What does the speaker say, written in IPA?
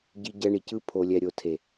ɟ i˧ ɟ ɛ˧ ɳ i˨ c ɯ˧ pʰ o˨ lʲ ɛ˨ ɾʲ o˨ tʰ e˨

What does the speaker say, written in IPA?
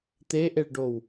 t̪ e ʔ e ɭ ɖ o w

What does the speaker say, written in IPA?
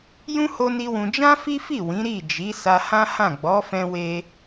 j ũ˦ h o˧ n i˦ w ũ˧ d͡ʒ ã˦ f i˦ f i˦˨ w ĩ˨˦ ɾ i˦˨ d͡ʒ i˨˦ s a˧ h ã˦ h ã˦˨ ɡ͡b ɔ˨˦ f ɛ̃˧ w e˧

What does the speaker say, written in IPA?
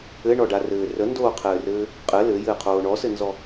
ɘ ɳ ɔ ɖ a r ɘː r ə n d oː qʰ ɘː r ɘː | qʼ ɘ l ɘ j ɘː qʰ oː ɳ ɔ s ɘ n z ɔ

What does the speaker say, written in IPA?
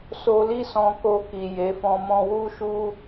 s o˧ l i˦ s ɔ̃˧ k o˧ k i˨ j e˨˦ f ɔ̃˦ m ɔ̃˧ w u˦ ʃ u˦

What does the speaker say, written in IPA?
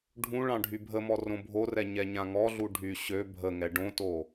ɖʱ ũ ɭ ɑ̃ ɖʱ y bʱ ə m ɔ r õ bʱ o r ɛ ɲ ɛ ɲ ã ŋ ɔ ɮ u ɖʱ y ɕ ø bʱ ə ŋ ɛ ɖ õ t o

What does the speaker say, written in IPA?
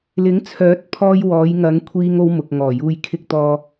l ɪ˨˥ ŋ t͡sʰ œː˨˥ t̚ pʰ ɔː˧ j w ɔː˨˧ j ŋ ɐ˨˧ ŋ kʷʰ iː˥ ŋ o˥ w m ʊ˨ k̚ ŋ ɔː˨˩ j uː˧ j kʰ ɪ˧ k̚ t̪ ɔː˨

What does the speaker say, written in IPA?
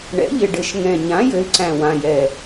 ɳ ɛ̰˩˥ ʎ ɪ˨˩ ɖ ɘ˨˩ ʃ ŋ ɛ̃˨˩ ɲ ã˩˥ j ɘ˩˥ y̯ ǀ æ̃˨˩ w ã˨˩ j ɛ˨˩

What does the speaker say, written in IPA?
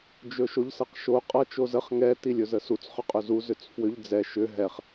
d͡ʒ ɵ ʃ o ʎ s ɤ q ʃ o qʼ ʌ t͡ʃ o z ə χ ŋ ɛ t i lʲ ɵ z ə s u t͡s χ ʏ qʼ ɵ z u z ʏ t͡s f w ʏ ʎ d͡z ɛ ʃ ʏ ɦ ɛ χ

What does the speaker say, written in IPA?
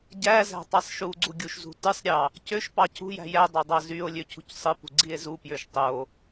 ɟ æ z æ̤ tˤ i sˤ ʃ u ɡ͡ǀ u ɡʲ u ʃ z ṳ t ɯ sˤ ɾʲ ɑ | c ø ʃ p ɑ cʰ ṳ j æ̤ j æ dˤ ɑ dˤ ɑ z y o̯ lʲ ø cʰ ṳ c sˤ ɯ p ṳ ɡ͡ǀ i e̯ z u p j ø ʃ tˤ o

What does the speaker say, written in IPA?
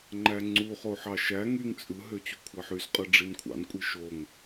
ŋ͡ǃ æ ŋ͡ǀ u χ o ħ ɑ ʃ æ ŋ y ŋ t͡sʼ ɯ ɦ ø t͡ɕ u kʷʰ ɑ ħ y s qʼ ɯ ɖ͡ʐ i n kʷʰ ɑ̰ n kʷʼ i ʃ o ŋ

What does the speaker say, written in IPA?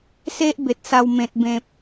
s e˦ ʔ b e˨ t̚ s a˧ w m ẽ˨ t̚ b ẽ˨ p̚

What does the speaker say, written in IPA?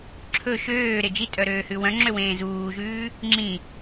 ǁʰ ɵ ʃ øː ɾ e d͡ʒ i tʼ œ ɾ øː h ʉ w œ̃ ŋ͡ǁ ø w ẽː z uː ʒ ʉː | ŋ͡ǁ ĩ

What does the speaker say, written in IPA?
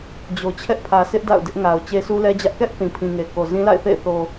d͡ʑ o˨ t͡ɕʰ ɛ˦ ʔ pʰ ä˨ s ɪ˦ ʔ d a̰˦˨ ʊ̯ d ɪ˦ ʔ ŋ a˨ ʊ̯ t͡ɕ e˦ s u˦ l ɛ˦ d͡ʑ ä˦ ʔ k ɛ˦ ʔ θ ĩ˨ pʰ ĩ˨ ŋ e˨ k o˨ z ĩ˦ l a̰˦˨ ɪ̯ θ ḛ˦˨ ɪ̯ θ o˨

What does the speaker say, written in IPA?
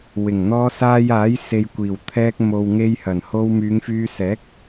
w ɪ˨˩ ŋ n̪ ɔː˧ s aː˧ j aː˨˥ j s e˨ j kʷ iː˨˩ w t̪ʰ ɛː˧ k̚ m o˨ w ŋ e˧ j h ɐ˨˩ n h o˧ w m yː˨˧ ŋ f yː˧ s ɛː˨˥ k̚

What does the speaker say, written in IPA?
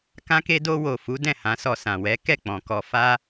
k ã˧ k e˧ d o˧ w o˨ f u˨˦ d ɛ̃˦˨ h ã˨˦ s ɔ˧ s ã˨ w ɛ˨˦ k ɛ˦˨ k͡p ɔ̃˨ k ɔ˧ f a˧

